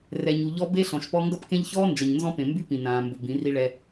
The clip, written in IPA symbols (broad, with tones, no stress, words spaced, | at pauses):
rɛ˨ɲu˨ ʎɔ˦ be˦ɬɔ̃˨ʃpɔ˦ ŋɡʌ˦pkẽ˦ʎ çɔː˦ nd͡ʒʌ˨ɲnzɔ̃˦pẽ˨ mby˦pĩ˨ nãː˨mbʊ˨ bĩ˨˦ri˦ɭɛ˦